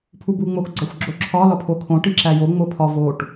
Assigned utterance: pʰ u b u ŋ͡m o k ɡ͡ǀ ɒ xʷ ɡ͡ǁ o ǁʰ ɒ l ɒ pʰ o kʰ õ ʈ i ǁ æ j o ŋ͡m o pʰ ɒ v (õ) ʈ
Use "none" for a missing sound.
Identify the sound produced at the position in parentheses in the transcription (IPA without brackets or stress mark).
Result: o